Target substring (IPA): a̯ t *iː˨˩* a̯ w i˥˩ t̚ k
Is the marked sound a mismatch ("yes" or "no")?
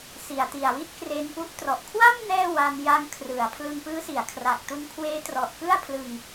yes